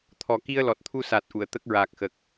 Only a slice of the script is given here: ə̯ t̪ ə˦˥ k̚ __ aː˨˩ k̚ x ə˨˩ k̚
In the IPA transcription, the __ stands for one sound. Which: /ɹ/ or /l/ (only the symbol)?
ɹ